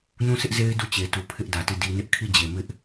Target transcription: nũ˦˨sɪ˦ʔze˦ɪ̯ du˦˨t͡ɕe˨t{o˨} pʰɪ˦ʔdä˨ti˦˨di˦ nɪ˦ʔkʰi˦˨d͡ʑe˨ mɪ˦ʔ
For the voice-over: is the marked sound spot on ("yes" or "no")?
no